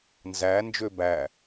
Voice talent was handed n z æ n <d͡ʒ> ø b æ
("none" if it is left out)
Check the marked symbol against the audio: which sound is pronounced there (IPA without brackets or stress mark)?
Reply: d͡ʒ